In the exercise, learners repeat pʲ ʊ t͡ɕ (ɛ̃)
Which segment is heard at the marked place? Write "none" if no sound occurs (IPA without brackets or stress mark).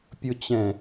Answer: ɛ̃